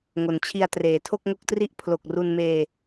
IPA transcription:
ŋo˩˦nt͡ɕʰi˧a̯ treː˩˦tʰo˥˩k̚ŋo˥˩k̚tri˥˩ʔ pʰlo˨˩k̚ru˧nmeː˧

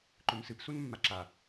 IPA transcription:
ǃɵmsɨp sunmːaǁa

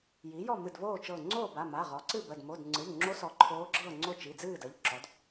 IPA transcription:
ji˩˥jɔ˥˨ mɨ˧˩dvoː˥˨t͡ʃɤː˧˩ ŋ͡ǀoː˥˨ba˩˧˩ma˩˧˩ ʁɔ˩˥ǀɨ˥˨bə˩˧˩d mo˩˧˩dŋ͡ǀɨ˩˧˩ʎŋ͡ǁo˧˥sɔ˩˥ ǃʰoː˧˥ɡ͡ǁɤː˥˨ŋ͡ǀo˥˨ t͡ʃi˩˧˩d͡zɨː˥˨ də˩˧˩ʎǁɔ˩˥d

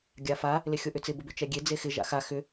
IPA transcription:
ɡʲafa | lɪxʲoʔʏt͡sɪ bʊbʏt͡ʃɛɡʲe d͡zexɪ ʒa̰xa xʏ

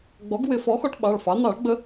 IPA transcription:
ɡ͡bɔ˩˥ɡwɪ˨˩˦ fɔ˩˥xɔ˧ʈ ɓɑ˩˧˩ɭfɑ˩˥ n̪ɑ˨˩˦ɭɡ͡bə˧

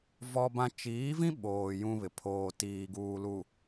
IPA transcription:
vɔ˦bã˦ t͡ʃiː˨˦vĩ˦ ɓoː˨ jũ˦βɪ˨ pʰoː˨tiː˨ ɡuː˨lu˨

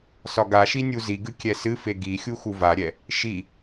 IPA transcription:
sɒɡaʃi nʲuziɡɨ kʲɛsɨfe ɡixʲu xuvaɾʲɛ | ʃi

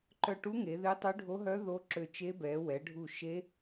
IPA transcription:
ǃœ˦˨ʈu˦˥ŋe˨˦ ðe˦˥tˤø˦˥ɖʱo˦˥ɦœ˦˥ ðo˦˥ǁø˦˨t͡ʃe˦˥ bɛ˨˦ wɛ˨˦ɖʱu˦˨ ʃe˦˥

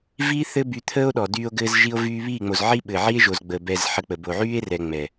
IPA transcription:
viː˦θɘ˦ by˧t̪ʰəː˦o̯ɗɔ˨ dyː˧o̯ ɡɘː˧zʒi˧o̯vyː˧ βiː˦˨ŋ͡mo˨zʕi˦ɓɘ˨ ʕi˦e̯ʒo˨zɡ͡bəː˨ bɛ˧zħə˧k͡pə˨ bo˨ʕyː˦e̯ rɛ˧ŋ͡mɛ˨

